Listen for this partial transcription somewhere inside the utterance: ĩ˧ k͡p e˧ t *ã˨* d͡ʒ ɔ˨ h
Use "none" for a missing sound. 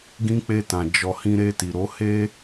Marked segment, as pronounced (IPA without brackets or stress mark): ã˨